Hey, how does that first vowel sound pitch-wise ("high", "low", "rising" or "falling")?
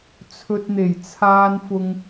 low